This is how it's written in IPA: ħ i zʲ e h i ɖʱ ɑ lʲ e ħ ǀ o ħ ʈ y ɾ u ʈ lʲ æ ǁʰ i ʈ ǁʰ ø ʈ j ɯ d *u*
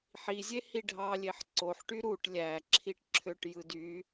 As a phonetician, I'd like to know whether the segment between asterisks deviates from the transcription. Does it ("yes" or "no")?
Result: yes